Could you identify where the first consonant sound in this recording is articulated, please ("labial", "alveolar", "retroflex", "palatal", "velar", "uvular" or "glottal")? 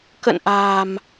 velar